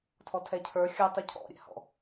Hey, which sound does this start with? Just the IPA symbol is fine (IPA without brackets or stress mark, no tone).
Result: tʰ